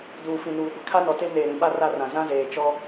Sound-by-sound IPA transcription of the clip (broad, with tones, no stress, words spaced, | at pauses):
duː˨fĩ˨nuː˨ ɡʷɪ˦kʰa˦nɔ˨te˦ neː˨ɾĩ˨ɓa˦ ra˦rã˨ zã˦zeː˨ t͡ʃɔ˦